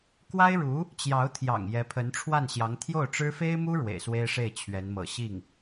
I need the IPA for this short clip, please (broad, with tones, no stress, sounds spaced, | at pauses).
k w a˥ ɪ̯ ɻ u˧˥ | t͡ɕ j ɑ˧˥ ʊ̯ t̪ʰ j ɑ̰˨˩ ŋ j ɛ˧˥ pʰ ə˧˥ n ʈ͡ʂʰ w a˥˩ n ɕ j ɑ˧˥ ŋ t̪ʰ j o˥˩ ʊ̯ ʈ͡ʂ ɻ̩˥ f e˥ ɪ̯ m u˥ ɻ w ḛ˨˩ ɪ̯ s w e˥ ɪ̯ ʂ e˥˩ ɪ̯ t͡ɕʰ ɥ ɛ˧˥ n m ɤ̰˨˩ ɕ i˥˩ ŋ